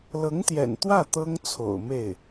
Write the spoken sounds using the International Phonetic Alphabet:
l ɤ˧˥ ŋ t̪ j ɛ̰˨˩ n t̪ w ä˥˩ t̪ ɤ˥ ŋ t͡sʰ o̰˨˩ ʊ̯ m e˥˩ ɪ̯

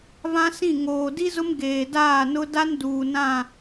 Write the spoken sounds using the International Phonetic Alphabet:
v ã˦ s ĩ˦˨ ŋ oː˨ d i˦ z ʊ˦ m ɡ eː˨ d aː˦˨ n ʊ˦ d a˦ n d uː˨ n ã˦˨

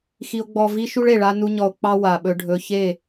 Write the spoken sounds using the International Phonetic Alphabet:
x i˧ o̯ ɡ͡b ɔ˧ v i˦ ʃ u˦ ɭ e˨ ɭ a˦ n u˦ ɲ ɔ˧ o̯ k͡p ɑ˦ w a˨ ɓ ɵ˧ ɖʱ ɵ˧ ç e˦˨

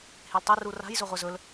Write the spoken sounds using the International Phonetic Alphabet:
h e l tˤ e r u r a̤ j z ɵ ʁʷ ɛ z ɵ l

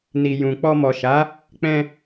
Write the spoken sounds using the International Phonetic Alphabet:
n i˨ j ũ˨ k͡p ɔ˧ m ɔ˨ ʃ a˨˦ | k͡p ɛ̃˧

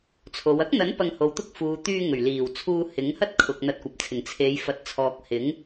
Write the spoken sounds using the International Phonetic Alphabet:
t͡sʰ o˨˧ w ɐ˥ k̚ n̪ ɐ˨˥ n p ɐ˧ ŋ h o˨ w t̪ ʊ˥ k̚ f uː˨ t̪ yː˧ ŋ ɵ˨˩ ɥ l iː˨˩ w t͡sʰ uː˧ h ɪ˨˥ ŋ h ɐ˥ t̚ kʰ ʊ˨ k̚ n̪ ɐ˧ t̚ kʷ ɐ˨ p̚ t͡sʰ ɪ˨˩ ŋ t͡sʰ e˨˧ j f ɐ˨ t̚ t͡sʰ ɔː˨ k̚ h ɪ˨˥ ŋ

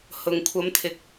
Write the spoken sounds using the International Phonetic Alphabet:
h ʊ˨ ŋ kʷʰ ɐ˨˧ m t̪ʰ ɪ˨ k̚

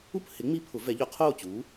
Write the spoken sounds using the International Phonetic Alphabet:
u˥˨ p h ɪ˩˥ ŋ͡m i˧˥ pʰ ʊ˩˥ v ɛ˩˥ ʎ ʊ˩˥ qʰ oː˥˨ t͡ɕ uː˩˥

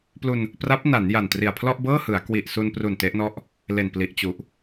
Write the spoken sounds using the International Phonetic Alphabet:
p l u˧ n | p r a˦˥ p̚ n a˩˦ n j a˨˩ n t r i˨˩ a̯ pʰ l ɔ˥˩ ʔ b ɤː˥˩ h ɯ˩˦ a̯ k w i˨˩ ʔ s u˧ n p r u˨˩ n t e˦˥ ʔ n ɔ˥˩ ʔ | l e˨˩ n p l i˨˩ ʔ t͡ɕ u˨˩ ʔ

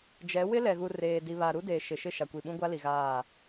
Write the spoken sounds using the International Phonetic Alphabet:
d͡ʒ ɛ˨˦ w ɪ˦ l ɛ˨ ɣ u˨ r eː˨ d i˨ β a˨ ɾ u˦ d eː˨ ʃ ɪ˨ ʃ ɪ˦˨ ʃ a˨ kʷ i˨ ɓ ũ˦ ɡʷ a˦ l i˨ ɣ aː˦˨

